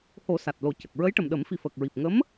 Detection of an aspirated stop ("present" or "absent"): absent